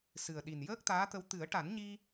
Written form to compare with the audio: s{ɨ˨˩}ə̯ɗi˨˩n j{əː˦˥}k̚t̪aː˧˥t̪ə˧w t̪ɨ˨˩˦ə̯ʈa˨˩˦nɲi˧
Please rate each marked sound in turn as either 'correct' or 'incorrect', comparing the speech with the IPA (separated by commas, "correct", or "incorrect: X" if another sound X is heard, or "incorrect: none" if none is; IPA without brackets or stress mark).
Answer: correct, correct